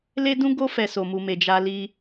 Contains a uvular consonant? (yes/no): no